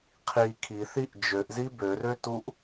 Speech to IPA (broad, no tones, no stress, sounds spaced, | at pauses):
qʰ i kʰ i θ i ʔ d͡ʒ ø ʔ z i b ø r ø t u ʔ